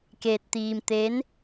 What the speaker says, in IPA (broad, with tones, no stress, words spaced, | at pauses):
ke˧t̚t̪iː˧mt̪e˧˥n